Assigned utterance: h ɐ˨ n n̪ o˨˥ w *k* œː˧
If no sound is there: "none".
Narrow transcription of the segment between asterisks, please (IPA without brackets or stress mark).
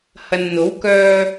k